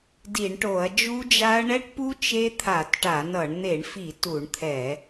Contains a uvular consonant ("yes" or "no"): no